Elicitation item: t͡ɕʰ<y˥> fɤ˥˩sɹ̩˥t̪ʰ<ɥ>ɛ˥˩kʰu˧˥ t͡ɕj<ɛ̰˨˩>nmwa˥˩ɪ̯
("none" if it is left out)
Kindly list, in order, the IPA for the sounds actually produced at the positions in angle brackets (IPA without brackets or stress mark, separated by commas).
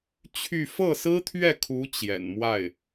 y˥˧, ɥ, ɛ̰˨˩